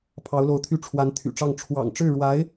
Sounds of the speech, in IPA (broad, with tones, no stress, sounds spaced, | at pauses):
pʰ ɑ˧˥ ʊ̯ l o˧˥ ʊ̯ t̪ʰ y˥˩ ʈ͡ʂʰ w a˧˥ n t̪ʰ y̰˨˩ ʈ͡ʂ ɑ˥˩ ŋ ʈ͡ʂʰ w ɑ̰˨˩ ŋ ʈ͡ʂ ɻ̩˥˩ ɻ w a˧˥ ɪ̯